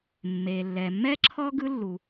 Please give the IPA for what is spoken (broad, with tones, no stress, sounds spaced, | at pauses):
mː e˩ lː ɛ˩ mː ɛ˥ ǁʰ ɔ˥ ɡ ɯ˥ lː u˩